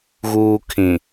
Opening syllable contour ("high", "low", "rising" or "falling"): low